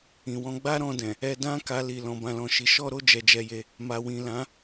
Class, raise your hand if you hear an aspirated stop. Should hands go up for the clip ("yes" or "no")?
no